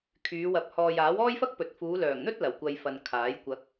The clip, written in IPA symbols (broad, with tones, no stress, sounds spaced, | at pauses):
kʰ yː˨˧ w ɐ˨ p̚ h ɔː˨ j aː˨˥ w ɔː˥ j f ɐ˥ k̚ p ɵ˨ t̚ f uː˨˧ l œː˨˩ ŋ n̪ ɵ˥ t̚ l ɐ˨˩ w kʷ ɐ˧ j f ɐ˨ n kʰ aː˨˥ j kʷ ɐ˨˥ k̚